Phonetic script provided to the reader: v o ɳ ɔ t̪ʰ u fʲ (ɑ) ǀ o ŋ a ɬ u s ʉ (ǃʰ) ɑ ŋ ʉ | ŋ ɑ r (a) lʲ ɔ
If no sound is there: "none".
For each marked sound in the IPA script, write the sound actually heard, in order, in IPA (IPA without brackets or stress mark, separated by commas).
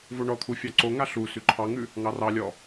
ɑ, ǃʰ, ɑ